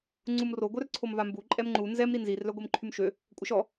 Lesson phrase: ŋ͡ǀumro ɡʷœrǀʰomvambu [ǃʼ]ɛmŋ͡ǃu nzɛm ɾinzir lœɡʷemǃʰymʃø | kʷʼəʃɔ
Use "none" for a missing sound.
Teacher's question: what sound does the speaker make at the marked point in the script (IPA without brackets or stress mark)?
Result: ǃʼ